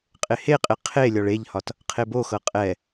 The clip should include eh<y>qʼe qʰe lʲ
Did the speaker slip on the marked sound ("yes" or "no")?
yes